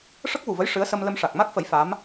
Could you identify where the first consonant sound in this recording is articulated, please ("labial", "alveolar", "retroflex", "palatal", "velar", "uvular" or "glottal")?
retroflex